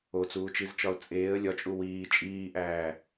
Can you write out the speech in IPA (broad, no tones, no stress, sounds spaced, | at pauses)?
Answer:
o t͡s uː t͡ʃ i z t͡ʃ ɒ ʊ̯ t͡sʼ eː ə̯ lʲ ɒ t͡ʃʼ u w iː t͡ʃʼ iː ʔ æː